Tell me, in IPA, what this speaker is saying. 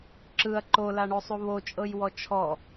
ǁ ɯ ɐ̯ ǃ o l a ɳ o sˤ u β o t͡ʃʼ ɤ j w ɔ t͡ʃʰ ɔ

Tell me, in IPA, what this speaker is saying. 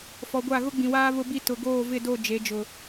f ɔ˨ ɡʷ a˦˨ ɣ ʊ˦ ɡ͡b ĩ˨ w aː˦ β ʊ˦ b i˦ t ʊ˨ ɡ oː˦˨ v ɪ˦˨ d o˦˨ d͡ʒ e˨˦ d͡ʒ ʊ˨

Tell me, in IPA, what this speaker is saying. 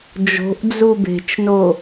d͡ʒ o̤ ʔ d͡z u b e̤ t͡ʃ n o

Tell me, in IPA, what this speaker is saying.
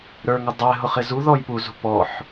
ɾ ə˞ ŋ ə dˤ ɛ ɦ ʊ χ ɪ z u ð ɔ j p u z ṳ p ɔ ħ

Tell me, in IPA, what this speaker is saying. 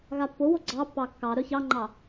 ɣ a pː o w o ɡ͡ǀ ɑ pː ɑ kː ɑ ɾ œ ç ɑ ŋ͡ǃ ɑ

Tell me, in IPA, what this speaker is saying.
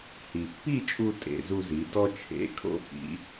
h i˩ pː i˥˨ t͡ʃʼ u˧ tʼ ḛ˩ z u˧ z i˩˧ d ɔ˧ t͡ʃʰ ḛ˩˧˩ kʰ o̰˧ f ḭ˩˧

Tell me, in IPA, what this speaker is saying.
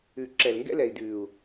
ʉ˨ ǁ ɛ˨ l ŋ ɡ ɛ̰˦ l ɛ˨ i̯ d ʉː˨ u̯

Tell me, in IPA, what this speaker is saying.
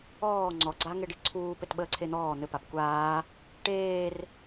ɔː ŋ͡ǀ ɔ ɡ͡ǀ a ŋ e ɖ i ǀʰ uː p ɘ t ɓ əː ǀʰ e n̪ ɔː n̪ ɘ p a p kʷ aː | ʈ eː r

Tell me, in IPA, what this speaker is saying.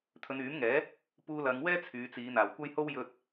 t̪ʰ ɵ˨˧ n yː˨˥ m ŋ ɛː˨˥ | p uː˧ l ɐ˨˧ ŋ w ɛː˥ t͡sʰ yː˨˧ t͡s iː˨˧ n̪ aː˨˩ w kʷ ɐ˥ j h o˥ w j ɵ˥ t̚

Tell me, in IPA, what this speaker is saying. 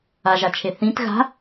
a ʒ a t͡ʃʰ e θ ĩ t ɣ a̤

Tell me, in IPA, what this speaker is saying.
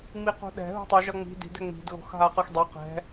ŋ͡m i q ṳ ɗ ɛ̤ ɦ ṳ tˤ u ʒ ʌ ŋ͡m i̤ d i̤ d ɛ ŋ͡m i̤ d ɣ o̤ x ɦ a q ɯ x dˤ o q ɛ̤

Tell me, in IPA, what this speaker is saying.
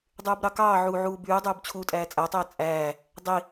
dˤ yː b ɾ ɑ k ɑː ʕ uː ʕ uː b yː dˤ yː b t͡ɕʰ uː tʼ æː t͡sʼ æ tˤ eː t͡sʼ æː | dˤ i

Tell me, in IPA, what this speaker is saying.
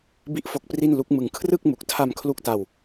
b i˥˩ ʔ f o˦˥ k̚ p r i˥˩ n l u˦˥ k̚ m ɯ˧ ŋ kʰ r ɯ˥˩ k̚ m u˨˩ k̚ tʰ a˧ m kʰ l u˥˩ k̚ t a˧ w

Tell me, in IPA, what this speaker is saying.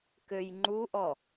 k ø j ŋ͡ǃ u ʔ ɔ

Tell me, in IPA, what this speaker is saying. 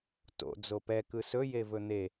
t o̰ d͡z o p ɛ k ɯ s ɵ j e v ɵ n̪ e

